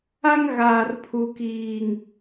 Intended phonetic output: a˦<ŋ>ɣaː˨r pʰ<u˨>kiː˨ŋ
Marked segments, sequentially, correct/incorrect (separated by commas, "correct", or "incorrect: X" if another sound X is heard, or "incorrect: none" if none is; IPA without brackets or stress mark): correct, correct